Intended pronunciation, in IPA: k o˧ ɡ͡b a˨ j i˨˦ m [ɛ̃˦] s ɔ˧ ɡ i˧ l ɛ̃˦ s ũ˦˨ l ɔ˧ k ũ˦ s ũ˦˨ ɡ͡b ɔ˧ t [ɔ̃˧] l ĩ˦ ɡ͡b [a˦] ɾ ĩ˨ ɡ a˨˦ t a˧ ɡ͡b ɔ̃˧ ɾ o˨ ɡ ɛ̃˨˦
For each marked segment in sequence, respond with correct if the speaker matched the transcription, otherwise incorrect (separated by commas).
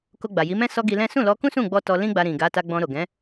correct, incorrect, incorrect